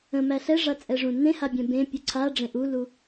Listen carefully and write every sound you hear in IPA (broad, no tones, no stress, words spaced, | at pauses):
ə̃mæ ɬɛʐat͡sʼɛʐũ nẽhabʲɛ̃ bẽpʲu ǀʰaɖ͡ʐẽ ʔulu